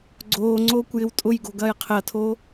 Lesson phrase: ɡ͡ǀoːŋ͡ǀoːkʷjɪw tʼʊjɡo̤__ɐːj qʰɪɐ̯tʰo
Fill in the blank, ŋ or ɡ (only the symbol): ɡ